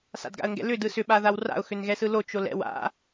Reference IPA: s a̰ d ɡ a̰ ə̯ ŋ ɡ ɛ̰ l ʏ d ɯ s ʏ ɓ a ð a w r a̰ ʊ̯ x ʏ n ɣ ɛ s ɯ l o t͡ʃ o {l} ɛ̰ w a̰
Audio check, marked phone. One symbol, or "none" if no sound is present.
l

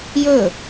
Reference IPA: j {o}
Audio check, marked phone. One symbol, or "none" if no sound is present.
ɵ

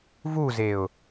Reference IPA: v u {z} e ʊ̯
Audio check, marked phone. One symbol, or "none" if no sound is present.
z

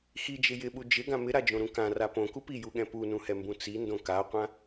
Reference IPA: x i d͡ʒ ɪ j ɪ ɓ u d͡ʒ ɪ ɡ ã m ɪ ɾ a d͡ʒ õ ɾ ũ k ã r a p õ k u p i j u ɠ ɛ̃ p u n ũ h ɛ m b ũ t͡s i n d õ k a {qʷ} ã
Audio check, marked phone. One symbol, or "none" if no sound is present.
qʷ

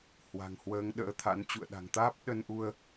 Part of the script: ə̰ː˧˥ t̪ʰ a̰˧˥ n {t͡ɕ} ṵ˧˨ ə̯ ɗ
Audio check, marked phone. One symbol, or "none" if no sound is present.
t͡ɕ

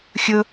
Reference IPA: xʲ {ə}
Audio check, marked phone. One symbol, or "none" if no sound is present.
ɵ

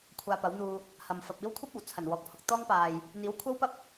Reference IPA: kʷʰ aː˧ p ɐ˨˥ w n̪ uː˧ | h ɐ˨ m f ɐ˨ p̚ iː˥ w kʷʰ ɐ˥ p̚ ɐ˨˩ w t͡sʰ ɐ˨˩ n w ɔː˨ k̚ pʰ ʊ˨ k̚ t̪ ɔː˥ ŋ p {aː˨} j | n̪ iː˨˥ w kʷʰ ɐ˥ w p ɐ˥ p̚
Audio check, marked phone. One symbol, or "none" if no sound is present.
aː˨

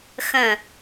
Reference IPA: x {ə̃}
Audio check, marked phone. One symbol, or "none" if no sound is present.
ə̃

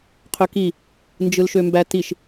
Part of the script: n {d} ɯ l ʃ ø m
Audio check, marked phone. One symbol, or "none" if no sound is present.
d͡ʒ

